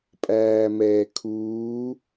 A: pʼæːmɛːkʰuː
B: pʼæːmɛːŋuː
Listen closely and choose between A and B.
A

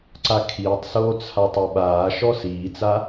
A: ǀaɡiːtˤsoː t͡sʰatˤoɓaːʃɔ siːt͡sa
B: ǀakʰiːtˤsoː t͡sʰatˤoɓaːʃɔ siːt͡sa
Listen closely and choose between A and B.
B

